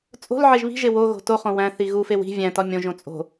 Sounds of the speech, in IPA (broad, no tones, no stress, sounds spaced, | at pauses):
t͡sʼ o̤ l ʕ e ʒ β i̤ ʒ e w o ɣ o̤ t o χ õ w æ̃ θ i ɣ u f e w i̤ vʲ æ̃ t ɒ mʲ õ ʒ õ t͡sʼ o̤